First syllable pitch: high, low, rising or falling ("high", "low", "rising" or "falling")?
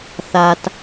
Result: low